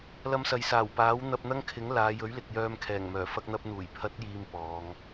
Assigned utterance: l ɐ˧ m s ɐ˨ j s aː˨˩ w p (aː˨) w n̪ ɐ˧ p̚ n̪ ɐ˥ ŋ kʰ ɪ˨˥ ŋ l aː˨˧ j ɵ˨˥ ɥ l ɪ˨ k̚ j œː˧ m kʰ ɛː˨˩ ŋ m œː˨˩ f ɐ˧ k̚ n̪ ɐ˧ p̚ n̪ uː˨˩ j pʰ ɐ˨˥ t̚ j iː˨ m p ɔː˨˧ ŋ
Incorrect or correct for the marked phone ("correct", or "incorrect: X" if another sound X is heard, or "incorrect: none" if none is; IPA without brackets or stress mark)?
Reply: incorrect: aː˨˥